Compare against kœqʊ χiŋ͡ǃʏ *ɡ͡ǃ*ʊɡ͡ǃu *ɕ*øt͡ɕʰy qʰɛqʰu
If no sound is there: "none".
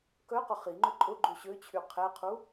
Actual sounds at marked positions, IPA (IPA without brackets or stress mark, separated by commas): ǃʼ, ɕ